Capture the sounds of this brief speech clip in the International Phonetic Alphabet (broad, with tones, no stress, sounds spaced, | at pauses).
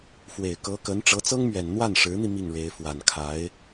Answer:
f w e˨˩ ɪ̯ k ɤ˧˥ k ə˧˥ n ʈ͡ʂ ɤ˧˥ t͡s ɤ˥ ŋ m ɥ ɛ˨˩ n n̪ w a˥˩ n ʂ ɻ̩˧˥ n̪ i˧ m i˥˩ ŋ ɻ e˧˥ ɪ̯ f w a˨˩ n kʰ a˧˥ ɪ̯